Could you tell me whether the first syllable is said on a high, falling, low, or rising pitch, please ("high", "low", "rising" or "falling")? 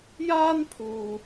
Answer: high